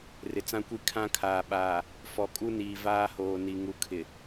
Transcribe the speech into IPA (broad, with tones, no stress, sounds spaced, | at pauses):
r ɪ˨ t͡s ã˦ kʷ i˦ kʰ ã˦ kʰ aː˨ ɓ aː˨ | f ɔ˨ kʼ u˦ n iː˨ v aː˦ h oː˨ n i˨ ŋ u˨ kʰ ɪ˨